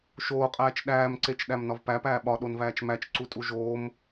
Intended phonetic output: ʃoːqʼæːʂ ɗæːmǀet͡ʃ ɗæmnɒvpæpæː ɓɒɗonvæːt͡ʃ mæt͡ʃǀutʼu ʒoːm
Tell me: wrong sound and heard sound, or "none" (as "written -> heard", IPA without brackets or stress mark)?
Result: ʂ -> t͡ʃ